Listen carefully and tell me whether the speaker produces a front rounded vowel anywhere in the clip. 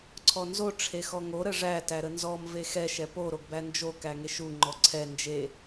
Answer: no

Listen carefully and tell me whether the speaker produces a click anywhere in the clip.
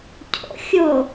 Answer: no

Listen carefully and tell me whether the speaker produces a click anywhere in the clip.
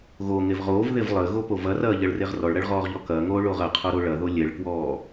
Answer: no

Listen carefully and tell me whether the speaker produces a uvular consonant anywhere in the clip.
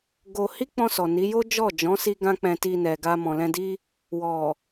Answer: no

